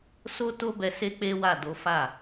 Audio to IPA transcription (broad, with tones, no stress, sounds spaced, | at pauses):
s o˦ t o˦ b ɛ˧ s e˦ k͡p e˦ w a˦˨ d o˨˦ f a˦˨